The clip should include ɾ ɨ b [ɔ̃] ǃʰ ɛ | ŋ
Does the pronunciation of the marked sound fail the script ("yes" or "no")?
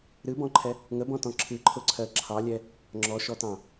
no